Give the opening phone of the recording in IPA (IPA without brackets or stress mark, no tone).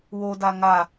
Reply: w